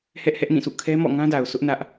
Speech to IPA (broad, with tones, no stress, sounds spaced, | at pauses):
h ɛ˦ ʔ h ɛ˦ ʔ n ĩ˦˨ sʰ ṵ˦˨ kʰ ɛ˦ m ɔ̰˦˨ ŋ ã˦ d a˨ ʊ̯ sʰ ʊ˦ ʔ n ä˦ ʔ